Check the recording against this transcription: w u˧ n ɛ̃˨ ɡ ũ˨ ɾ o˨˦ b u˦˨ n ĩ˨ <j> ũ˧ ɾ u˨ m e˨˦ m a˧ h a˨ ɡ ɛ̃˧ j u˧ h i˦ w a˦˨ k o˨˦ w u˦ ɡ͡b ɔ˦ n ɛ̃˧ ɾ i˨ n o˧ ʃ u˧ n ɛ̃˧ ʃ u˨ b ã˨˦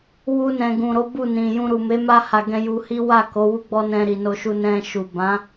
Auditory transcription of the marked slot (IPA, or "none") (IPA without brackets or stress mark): j